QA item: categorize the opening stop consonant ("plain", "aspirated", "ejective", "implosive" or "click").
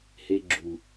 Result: click